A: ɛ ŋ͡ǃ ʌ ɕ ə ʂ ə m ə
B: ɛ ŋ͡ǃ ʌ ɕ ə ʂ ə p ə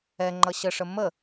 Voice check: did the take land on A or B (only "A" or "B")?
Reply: A